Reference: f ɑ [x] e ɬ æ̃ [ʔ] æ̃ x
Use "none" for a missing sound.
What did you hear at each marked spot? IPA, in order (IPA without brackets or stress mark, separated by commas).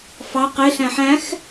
q, ħ